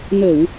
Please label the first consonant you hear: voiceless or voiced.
voiced